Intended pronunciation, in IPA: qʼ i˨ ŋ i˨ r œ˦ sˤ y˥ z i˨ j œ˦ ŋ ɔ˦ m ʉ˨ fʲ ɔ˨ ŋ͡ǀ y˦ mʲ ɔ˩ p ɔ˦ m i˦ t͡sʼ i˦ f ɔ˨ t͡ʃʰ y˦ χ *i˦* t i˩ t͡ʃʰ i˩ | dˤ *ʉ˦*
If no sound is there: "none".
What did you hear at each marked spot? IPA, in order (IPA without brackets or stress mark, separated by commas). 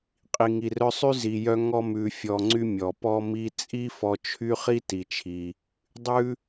i˥, ʉ˥